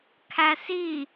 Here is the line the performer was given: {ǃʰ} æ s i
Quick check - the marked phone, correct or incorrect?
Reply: incorrect